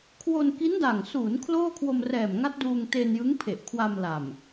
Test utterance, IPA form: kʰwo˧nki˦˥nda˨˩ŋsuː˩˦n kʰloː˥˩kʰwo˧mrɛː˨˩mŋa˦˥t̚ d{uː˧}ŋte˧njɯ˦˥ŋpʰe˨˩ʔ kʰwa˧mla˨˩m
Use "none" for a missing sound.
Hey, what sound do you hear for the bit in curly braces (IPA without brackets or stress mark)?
uː˧